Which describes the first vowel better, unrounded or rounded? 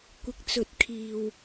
unrounded